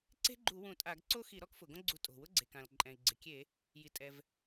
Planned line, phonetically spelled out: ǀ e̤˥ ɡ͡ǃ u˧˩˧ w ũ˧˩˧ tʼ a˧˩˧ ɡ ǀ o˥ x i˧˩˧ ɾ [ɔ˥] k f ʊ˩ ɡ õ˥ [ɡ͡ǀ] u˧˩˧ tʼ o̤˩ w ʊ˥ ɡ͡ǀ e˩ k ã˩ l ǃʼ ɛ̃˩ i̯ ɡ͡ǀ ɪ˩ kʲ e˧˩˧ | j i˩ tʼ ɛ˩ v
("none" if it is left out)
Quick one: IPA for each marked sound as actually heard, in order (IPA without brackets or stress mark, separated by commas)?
ɔ˥, ɡ͡ǀ